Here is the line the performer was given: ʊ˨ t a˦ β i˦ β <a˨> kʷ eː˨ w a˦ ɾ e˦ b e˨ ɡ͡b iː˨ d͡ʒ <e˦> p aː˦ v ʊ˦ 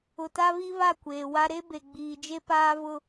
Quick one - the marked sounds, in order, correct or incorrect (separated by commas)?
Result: incorrect, correct